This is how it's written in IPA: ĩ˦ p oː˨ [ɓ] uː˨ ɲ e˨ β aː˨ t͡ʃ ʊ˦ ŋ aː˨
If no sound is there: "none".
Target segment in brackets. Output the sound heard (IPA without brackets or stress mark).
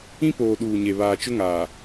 ɗ